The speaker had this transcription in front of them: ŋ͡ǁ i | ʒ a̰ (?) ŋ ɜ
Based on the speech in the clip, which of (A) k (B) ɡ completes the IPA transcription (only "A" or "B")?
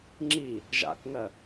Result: A